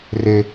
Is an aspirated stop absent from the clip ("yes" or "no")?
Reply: yes